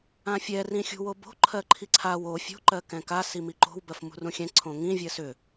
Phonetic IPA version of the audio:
ã fʲ ɛ r ĩ xʲ ṳ w o b o̤ ǃʰ ɜ ǃʰ i ǀʰ a w o fʲ o̤ ǃ ɜ k ɛ̃ k a s i m i ǃ o̤ w b ɜ f m ṳ r ũ xʲ ɛ̃ ǀʰ õ ŋ ĩ vʲ ɜ s ʏ

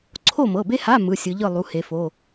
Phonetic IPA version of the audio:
ǀʰ o˥˨ m ɤ˩˧˩ b e˥ h a˧˥˧ m ɯ˩˧˩ sʲ ɯ˩˧ ʎ ɯ˥˨ lˠ u˩˧˩ h e˩˧ f o˩˧˩

